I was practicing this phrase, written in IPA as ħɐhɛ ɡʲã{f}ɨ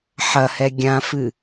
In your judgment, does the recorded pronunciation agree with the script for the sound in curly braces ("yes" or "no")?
yes